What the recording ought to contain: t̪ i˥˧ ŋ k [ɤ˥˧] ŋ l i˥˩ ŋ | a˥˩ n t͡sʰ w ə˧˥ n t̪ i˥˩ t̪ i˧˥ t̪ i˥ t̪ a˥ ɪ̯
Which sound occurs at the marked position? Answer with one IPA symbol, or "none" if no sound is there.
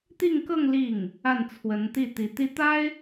ɤ˥˧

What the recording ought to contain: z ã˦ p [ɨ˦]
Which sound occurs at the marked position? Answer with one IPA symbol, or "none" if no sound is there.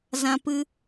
ɨ˦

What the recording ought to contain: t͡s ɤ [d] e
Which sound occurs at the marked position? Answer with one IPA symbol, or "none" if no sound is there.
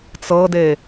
d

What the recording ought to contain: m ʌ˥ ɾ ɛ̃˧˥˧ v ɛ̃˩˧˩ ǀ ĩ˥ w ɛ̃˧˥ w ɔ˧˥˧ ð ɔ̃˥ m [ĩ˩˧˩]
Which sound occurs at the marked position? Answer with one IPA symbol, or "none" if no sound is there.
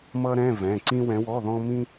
ĩ˥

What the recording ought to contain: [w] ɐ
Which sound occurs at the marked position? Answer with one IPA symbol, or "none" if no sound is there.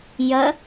j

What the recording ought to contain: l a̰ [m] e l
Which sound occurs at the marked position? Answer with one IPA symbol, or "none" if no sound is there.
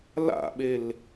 ɓ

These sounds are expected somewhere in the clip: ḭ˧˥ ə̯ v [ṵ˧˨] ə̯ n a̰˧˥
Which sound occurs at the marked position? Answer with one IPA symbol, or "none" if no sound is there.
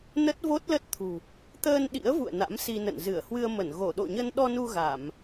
ṵ˧˨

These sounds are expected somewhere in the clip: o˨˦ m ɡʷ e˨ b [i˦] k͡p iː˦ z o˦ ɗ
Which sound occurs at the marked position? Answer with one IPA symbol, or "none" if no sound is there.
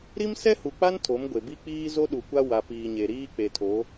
i˦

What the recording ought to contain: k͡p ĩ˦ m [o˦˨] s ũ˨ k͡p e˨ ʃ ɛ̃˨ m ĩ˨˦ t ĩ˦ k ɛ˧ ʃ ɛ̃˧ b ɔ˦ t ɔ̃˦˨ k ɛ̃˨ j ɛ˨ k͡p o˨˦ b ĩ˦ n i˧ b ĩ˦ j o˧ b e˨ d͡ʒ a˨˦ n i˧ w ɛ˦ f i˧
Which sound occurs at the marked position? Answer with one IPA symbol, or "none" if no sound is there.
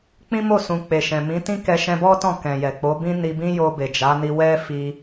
o˦˨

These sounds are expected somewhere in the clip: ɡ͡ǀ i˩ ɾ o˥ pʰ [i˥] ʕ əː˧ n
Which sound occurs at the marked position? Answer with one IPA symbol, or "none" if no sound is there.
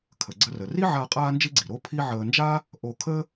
i˥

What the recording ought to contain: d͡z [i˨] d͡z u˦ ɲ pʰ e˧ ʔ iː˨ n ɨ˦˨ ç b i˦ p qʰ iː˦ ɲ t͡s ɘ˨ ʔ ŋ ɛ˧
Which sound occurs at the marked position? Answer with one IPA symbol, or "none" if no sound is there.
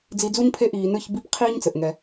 i˧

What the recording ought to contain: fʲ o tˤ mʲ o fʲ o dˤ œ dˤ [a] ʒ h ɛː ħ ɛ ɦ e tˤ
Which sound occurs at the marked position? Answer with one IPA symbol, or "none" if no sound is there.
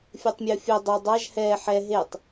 a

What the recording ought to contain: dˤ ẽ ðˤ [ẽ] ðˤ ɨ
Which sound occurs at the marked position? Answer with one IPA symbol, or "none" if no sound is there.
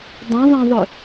ẽ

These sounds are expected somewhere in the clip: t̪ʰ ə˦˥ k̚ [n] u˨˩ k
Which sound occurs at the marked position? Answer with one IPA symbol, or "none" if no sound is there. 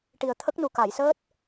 n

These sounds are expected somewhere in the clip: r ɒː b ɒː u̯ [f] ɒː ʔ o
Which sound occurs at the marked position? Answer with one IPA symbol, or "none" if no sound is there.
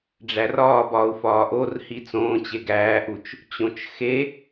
f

